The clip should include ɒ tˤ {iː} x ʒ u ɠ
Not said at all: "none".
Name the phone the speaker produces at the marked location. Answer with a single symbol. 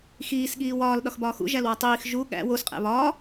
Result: iː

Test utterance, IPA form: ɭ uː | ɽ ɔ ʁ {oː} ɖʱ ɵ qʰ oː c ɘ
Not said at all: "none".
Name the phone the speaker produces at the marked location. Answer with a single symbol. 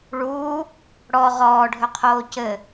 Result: ɔː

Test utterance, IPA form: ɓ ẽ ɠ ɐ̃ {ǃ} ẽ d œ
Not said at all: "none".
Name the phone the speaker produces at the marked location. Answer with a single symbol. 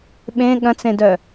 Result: t͡s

